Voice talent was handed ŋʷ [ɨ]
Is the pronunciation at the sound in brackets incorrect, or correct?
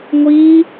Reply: incorrect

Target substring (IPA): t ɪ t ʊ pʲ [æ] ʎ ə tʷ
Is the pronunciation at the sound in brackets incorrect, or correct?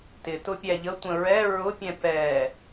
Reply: correct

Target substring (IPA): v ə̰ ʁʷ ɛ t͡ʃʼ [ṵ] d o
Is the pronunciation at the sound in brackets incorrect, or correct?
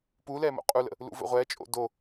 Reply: incorrect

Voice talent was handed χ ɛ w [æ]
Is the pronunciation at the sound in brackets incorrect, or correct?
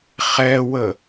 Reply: incorrect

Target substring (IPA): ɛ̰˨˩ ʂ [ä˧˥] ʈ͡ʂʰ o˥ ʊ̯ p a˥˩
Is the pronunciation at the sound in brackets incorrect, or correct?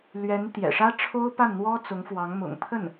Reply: incorrect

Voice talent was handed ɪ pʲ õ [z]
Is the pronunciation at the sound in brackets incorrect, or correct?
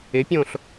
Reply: incorrect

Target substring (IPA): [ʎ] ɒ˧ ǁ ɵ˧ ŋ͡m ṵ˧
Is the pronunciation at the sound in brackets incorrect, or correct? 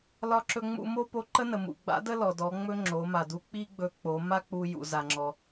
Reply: incorrect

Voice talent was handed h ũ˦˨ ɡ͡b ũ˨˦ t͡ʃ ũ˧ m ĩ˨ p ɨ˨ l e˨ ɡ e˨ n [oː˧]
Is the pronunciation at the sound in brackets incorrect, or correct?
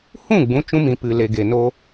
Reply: incorrect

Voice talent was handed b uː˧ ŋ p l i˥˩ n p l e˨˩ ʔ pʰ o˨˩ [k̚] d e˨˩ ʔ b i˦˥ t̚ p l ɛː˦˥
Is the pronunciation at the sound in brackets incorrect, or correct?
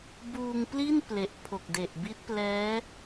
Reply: correct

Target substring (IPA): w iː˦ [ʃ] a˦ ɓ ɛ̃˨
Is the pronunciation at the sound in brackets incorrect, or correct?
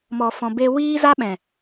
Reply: incorrect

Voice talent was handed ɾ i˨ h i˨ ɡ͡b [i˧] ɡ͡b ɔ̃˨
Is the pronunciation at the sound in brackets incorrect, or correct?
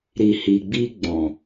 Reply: correct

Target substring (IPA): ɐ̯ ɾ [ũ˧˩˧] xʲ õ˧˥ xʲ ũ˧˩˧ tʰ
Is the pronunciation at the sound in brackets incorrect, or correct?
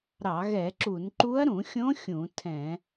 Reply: correct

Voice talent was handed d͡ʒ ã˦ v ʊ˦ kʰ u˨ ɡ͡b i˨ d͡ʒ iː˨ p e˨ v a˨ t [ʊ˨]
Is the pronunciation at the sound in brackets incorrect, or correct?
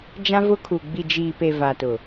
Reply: correct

